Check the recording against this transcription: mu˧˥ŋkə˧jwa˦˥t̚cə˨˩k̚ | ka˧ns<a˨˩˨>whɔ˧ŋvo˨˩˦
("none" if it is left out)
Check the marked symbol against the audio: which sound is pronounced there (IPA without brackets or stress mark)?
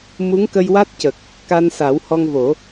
a˨˩˦